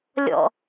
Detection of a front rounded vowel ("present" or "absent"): absent